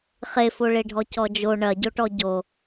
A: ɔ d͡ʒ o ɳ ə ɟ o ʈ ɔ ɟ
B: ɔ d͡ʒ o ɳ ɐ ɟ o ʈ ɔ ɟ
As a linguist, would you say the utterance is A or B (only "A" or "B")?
B